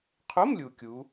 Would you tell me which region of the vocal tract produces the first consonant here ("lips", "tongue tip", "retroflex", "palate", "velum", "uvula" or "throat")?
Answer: uvula